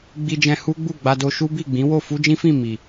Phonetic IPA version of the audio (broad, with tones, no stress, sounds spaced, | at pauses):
ɡ͡b i˧ d͡ʒ ɛ̃˧ h u˦ ɡ͡b u˦˨ ɡ͡b a˧ d o˧ ʃ u˦ b i˦˨ ɡ͡b ĩ˨˦ w o˦˨ f u˧ d͡ʒ ĩ˦ f ĩ˦˨ m i˨